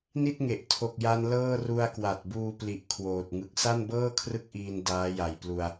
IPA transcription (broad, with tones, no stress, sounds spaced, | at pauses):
n i˥˩ t̚ ŋ e˨˩ ʔ tʰ o˨˩ k̚ j a˧ n l ɤː˥˩ r u˧ a̯ k w a˨˩ t̚ b uː˧ p l i˨˩ ʔ kʰ w oː˨˩ t̚ ŋ ɯ˨˩ k̚ s a˥˩ n b ɤː˥˩ kʰ r ɯ˥˩ k̚ ʔ iː˧ n d aː˦˥ j a˨˩ j p l u˧ a̯